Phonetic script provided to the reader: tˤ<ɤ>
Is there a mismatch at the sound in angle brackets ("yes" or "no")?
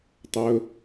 yes